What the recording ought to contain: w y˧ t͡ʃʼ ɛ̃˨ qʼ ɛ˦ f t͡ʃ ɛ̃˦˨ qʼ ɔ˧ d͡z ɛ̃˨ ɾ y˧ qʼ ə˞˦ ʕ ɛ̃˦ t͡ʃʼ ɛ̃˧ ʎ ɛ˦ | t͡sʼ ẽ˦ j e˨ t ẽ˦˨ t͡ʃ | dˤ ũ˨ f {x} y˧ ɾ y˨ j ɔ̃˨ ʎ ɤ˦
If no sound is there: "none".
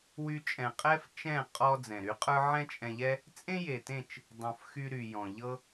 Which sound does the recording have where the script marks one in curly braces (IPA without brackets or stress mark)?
x